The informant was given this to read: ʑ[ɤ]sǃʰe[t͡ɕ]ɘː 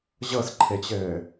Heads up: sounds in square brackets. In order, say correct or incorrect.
correct, correct

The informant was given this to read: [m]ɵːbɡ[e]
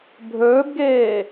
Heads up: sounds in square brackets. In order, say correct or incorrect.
incorrect, incorrect

